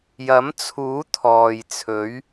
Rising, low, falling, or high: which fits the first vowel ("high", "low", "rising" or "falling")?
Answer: rising